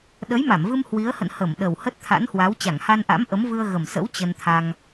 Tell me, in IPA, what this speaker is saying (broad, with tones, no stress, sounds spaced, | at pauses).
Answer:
ɗ ə˨˦ j m a˧˩ m v ɨ˧ m h w i˨˦ ə̯ h ə̰˧˨ n h ə˧˩ m ɗ ə˨˩ w h ə˦˥ t̚ t̪ʰ a̰˧˥ n h w a˨˦ w t͡ɕ a˧˩ ŋ h a˧ n ʔ a̰˧˥ m ʔ ə˨˦ m v ɨ˧ ə̯ ɣ ə˨˩ m s ə̰˧˥ w t͡ɕ ə˧ n t̪ʰ a˧ ŋ